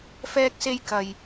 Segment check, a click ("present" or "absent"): absent